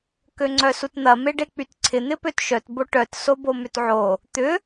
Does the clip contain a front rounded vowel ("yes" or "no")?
yes